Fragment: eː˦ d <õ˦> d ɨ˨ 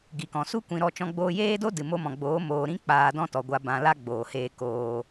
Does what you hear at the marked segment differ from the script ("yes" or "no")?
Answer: yes